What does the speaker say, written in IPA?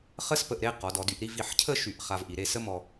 χ ə˥ s p ə˧ ʔ ɾ e˥˧ q ɔ˩˧ d ɔ˩˧ d y˩˧ ʔ ɾ i˥˧ v i˧˩ ħ cʰ ə˥˧ ʃ y˧˩ ʔ χ a˧ v ʔ i˩˧ ɾ e˥˧ s ə˥ m ɔ˧

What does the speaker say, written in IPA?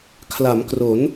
kʰ l a˩˦ m k r o˩˦ n

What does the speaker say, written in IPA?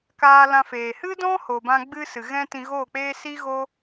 k aː˧ l ã˧ f eː˨ h ɨ˦ d ɔ̃˦ h o˨ b ã˧ ɡ͡b ɨ˦ s ɨ˨ ɣ ɛ̃˦ t ĩ˧ ɣ oː˦˨ k͡p eː˦ s i˦ ɣ o˦

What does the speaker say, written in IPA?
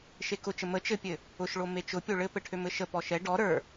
ʃ e k ʊ t͡ʃ ə m ə t͡ʃ ɘ pʲ ɘ | ʊ ʃ ɭ o m e t͡ʃ ʊ pʲ o ɭ ɘ p ɘ ʈʰ ø m ɘ ʃ ə p ɔ ʃ ɛ ɖ ɔ ɾ ə˞

